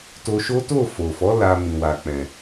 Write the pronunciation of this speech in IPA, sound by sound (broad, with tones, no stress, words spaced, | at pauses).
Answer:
to˧ʃo˦ to˦˨fo˨fɔ˨˦ la˧ mĩ˨wa˨ k͡pɛ̃˨